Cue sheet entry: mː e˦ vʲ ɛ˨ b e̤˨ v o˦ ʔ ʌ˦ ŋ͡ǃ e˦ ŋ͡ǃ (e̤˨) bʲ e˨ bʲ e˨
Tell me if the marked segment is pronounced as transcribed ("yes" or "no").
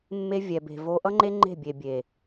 no